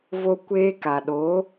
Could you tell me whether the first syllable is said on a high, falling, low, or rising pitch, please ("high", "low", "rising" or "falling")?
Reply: high